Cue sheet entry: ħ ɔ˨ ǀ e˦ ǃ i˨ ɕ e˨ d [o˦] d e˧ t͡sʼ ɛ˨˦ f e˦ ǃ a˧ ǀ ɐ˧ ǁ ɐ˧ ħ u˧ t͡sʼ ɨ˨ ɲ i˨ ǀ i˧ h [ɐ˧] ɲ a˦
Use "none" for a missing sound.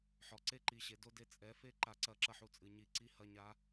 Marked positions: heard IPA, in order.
o˦, ɐ˦˨

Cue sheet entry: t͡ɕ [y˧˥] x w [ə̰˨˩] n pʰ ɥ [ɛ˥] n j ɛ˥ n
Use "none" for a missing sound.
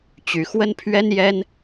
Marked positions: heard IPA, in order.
y˧˥, ə˥, ɛ˥

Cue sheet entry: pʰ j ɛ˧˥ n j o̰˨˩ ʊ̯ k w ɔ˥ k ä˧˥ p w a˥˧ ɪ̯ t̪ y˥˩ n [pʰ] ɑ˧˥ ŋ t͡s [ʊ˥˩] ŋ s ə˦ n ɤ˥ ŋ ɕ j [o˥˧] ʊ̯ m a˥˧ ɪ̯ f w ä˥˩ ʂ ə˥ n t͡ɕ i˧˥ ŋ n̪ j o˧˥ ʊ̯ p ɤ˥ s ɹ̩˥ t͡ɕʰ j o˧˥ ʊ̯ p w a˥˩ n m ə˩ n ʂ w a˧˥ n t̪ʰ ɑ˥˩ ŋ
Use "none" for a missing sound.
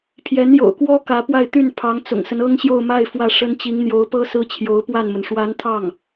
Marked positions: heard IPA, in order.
pʰ, ʊ̰˨˩, o˥˧

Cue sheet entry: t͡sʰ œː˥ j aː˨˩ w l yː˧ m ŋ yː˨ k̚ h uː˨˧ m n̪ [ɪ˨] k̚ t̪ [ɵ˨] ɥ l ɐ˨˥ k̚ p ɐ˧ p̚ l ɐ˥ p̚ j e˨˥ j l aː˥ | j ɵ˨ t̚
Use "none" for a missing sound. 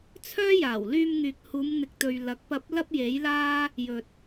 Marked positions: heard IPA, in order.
ɪ˨, ɵ˨

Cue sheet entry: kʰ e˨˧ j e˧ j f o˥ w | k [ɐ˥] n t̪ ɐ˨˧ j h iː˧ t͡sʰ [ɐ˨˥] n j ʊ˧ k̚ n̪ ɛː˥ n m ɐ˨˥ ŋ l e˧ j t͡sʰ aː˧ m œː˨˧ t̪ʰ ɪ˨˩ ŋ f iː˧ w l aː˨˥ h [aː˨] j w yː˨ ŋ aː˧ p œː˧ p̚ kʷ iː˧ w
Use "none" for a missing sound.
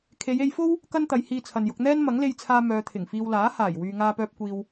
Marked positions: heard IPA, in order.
ɐ˥, ɐ˨, aː˨˩

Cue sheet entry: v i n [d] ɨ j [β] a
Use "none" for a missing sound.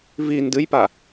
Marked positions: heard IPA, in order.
d, p

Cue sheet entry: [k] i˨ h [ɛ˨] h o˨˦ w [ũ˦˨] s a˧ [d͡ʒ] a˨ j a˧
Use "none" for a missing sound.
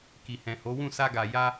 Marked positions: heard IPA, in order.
k, ɛ̃˨, ũ˦˨, ɡ

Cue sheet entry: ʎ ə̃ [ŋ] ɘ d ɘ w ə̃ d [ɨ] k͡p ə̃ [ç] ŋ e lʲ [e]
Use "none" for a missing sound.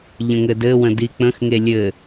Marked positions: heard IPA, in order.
ŋ, i, x, ɘ

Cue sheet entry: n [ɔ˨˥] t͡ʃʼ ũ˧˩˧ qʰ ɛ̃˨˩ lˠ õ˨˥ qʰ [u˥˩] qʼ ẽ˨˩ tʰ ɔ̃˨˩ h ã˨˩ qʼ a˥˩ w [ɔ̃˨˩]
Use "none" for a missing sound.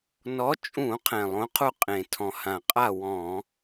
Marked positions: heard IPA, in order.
ɔ˨˥, u˥˩, ɔ̃˧˩˧

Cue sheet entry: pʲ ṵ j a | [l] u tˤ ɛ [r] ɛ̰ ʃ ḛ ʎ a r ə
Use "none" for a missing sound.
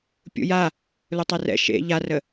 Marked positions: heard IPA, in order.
l, r

